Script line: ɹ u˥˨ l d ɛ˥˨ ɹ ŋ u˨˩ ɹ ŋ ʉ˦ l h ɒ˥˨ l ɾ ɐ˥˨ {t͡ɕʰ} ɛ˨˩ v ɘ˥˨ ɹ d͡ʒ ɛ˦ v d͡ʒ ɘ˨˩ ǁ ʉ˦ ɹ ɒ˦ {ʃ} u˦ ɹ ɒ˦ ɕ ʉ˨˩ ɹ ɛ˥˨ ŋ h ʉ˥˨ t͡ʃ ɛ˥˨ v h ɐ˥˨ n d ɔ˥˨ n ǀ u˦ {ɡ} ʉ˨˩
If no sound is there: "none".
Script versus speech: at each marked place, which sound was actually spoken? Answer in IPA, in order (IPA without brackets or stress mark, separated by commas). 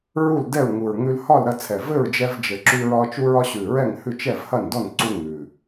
t͡sʰ, t͡ʃ, ŋ